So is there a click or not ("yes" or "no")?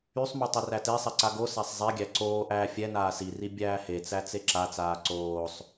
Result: yes